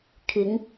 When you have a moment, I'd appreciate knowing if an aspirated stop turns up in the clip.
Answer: yes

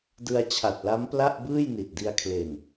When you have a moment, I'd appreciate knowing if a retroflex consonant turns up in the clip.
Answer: no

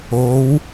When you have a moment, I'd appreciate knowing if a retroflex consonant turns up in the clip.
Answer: no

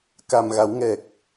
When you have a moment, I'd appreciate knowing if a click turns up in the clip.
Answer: no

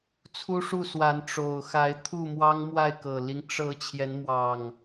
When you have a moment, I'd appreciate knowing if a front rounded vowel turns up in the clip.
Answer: no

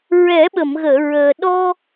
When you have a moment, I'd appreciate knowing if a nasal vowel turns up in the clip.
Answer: no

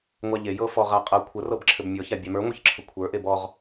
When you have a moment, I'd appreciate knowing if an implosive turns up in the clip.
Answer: no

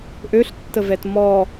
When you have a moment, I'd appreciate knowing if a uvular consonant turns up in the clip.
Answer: no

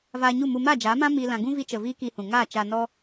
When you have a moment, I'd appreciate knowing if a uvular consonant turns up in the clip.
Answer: no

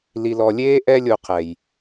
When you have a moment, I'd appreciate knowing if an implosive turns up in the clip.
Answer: no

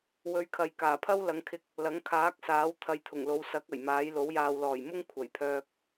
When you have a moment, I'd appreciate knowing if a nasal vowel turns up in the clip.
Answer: no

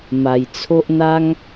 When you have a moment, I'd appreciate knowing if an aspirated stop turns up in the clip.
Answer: yes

